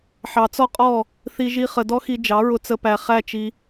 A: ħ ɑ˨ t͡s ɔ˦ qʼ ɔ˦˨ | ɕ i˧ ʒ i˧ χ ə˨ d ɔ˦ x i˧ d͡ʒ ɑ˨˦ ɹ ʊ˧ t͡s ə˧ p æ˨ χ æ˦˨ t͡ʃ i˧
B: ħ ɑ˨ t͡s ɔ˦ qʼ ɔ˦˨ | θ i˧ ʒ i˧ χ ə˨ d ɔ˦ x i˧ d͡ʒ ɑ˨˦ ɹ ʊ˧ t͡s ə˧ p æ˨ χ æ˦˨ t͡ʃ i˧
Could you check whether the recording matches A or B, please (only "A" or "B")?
B